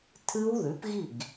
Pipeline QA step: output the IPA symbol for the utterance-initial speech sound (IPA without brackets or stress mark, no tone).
tʰ